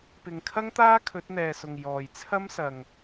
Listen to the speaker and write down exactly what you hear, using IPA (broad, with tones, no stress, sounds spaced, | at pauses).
p ɪ˨ ŋ kʰ ɐ˥ ŋ t̪ aː˥ kʰ ɵ˨˥ t̚ n̪ ɛː˨ s ʊ˨ ŋ j ɔː˨ j t͡sʰ ɐ˥ m s ɐ˨ ŋ